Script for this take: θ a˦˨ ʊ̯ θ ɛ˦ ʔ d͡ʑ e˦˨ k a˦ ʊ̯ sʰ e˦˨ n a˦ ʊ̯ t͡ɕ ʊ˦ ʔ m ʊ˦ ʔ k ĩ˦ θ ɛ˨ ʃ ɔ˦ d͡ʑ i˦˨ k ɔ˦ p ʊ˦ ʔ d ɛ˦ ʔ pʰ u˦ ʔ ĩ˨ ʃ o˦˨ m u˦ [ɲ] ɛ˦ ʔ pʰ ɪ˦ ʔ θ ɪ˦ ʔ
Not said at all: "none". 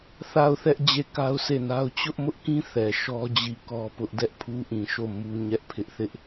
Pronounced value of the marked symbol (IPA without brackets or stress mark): ɲ